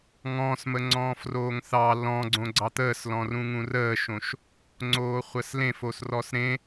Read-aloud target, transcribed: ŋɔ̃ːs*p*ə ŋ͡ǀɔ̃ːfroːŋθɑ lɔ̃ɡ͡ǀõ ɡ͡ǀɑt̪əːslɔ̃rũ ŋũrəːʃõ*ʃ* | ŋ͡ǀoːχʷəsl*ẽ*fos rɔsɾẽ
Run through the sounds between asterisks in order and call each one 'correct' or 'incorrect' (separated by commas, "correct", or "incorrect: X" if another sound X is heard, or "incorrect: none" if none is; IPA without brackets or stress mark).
incorrect: m, correct, correct